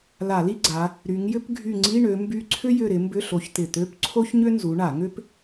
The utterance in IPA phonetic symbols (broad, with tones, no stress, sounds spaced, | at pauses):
l a˧˩˧ l i˥ ɡ͡ǀ a˨˦ | ɾ y˨˦ ŋ j ʏ˥ p ɡʱ y˦˨ ŋ͡ǀ i˧˥˧ ɳ ø˨˦ m b y˦˨ ǀʰ ʏ˥ j ʏ˦˨ ɾ ɪ˨˦ m b ʏ˧˥˧ ɬ o˨˦ ç t̪ ɪ˨˩ t̪ ø˧˥˧ p ǀʰ o˥ ç ɲ ʏ˥ n z u˨˦ ɳ a˧˩˧ ŋ ʏ˥ p